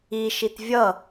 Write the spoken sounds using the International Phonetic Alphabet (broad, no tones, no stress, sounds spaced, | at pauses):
i ʃ i t vʲ ʌ